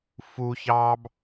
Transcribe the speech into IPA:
f u ç ɑː b

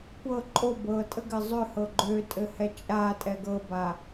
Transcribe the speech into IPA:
kʷ ɤ ǃʼ o b ɤ tʼ ə ɡ ɘ zˤ ø h ɤ ɡ͡ǃ ø tʼ ɘ h ɛ t͡ʃʼ a tʼ ɛ ɡ ɤ b a

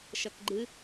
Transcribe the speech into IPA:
ʃ ʌ k ɡ͡ǃ ɨ

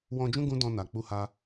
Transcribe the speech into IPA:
w ɔ̃˧ d͡ʒ ũ˦ ɡ ũ˦ d ɔ̃˧ n a˨ k͡p u˧ h a˧

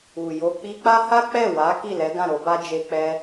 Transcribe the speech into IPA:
u˨ j o˧ k͡p i˧ k͡p a˦ h a˦ k͡p ɛ˦˨ w a˨˦ k i˦˨ l ɛ˨˦ ɡ ã˦˨ ɾ o˧ b a˦ d͡ʒ e˧ k͡p ɛ˧

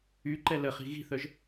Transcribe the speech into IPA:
y ǃ ɛ l ə χ i̤ ɣ i̤ θ œ ʒ

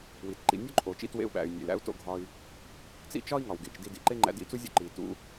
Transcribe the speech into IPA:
w i˩ t ǃ ḭ˧ nʲ o˥ ǃʼ o˩ t͡ʃ ḭ˥ t w ḛ˧ u̯ ɓ æ̰˩ y̯ nʲ ḛ˩ l æ̰˥ u̯ t o̰˧ ɡʱ ɒ˧ i̯ | t͡s ḭ˥ t͡ʃ ɒ˥ i̯ ŋ ɒ˩ w ɡ ḛ˩ t͡ʃ d i˧ d ḭ˩ ǃ e˥ ŋ͡ǃ æ̰˧ d ḭ˧ t͡s u˥ zʲ ṵ˥ ǃ i˩ t ṵ˥

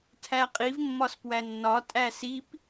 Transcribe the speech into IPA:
tʰ æ qʼ i v mː ɒ s p w æ nː ɒ tʼ æ s i p

